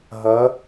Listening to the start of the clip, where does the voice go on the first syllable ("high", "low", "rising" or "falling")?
rising